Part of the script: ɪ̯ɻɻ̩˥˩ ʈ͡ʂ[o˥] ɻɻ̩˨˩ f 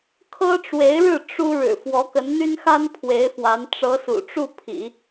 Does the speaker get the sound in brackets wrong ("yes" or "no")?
yes